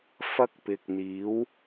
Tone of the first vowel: high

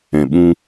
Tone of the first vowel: low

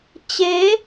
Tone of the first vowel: rising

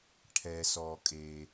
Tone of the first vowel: low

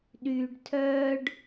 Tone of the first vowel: low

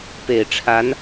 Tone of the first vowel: low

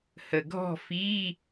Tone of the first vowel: low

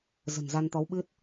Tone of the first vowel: low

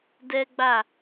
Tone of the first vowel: high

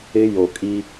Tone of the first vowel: high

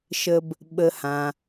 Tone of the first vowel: low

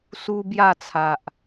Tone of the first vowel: high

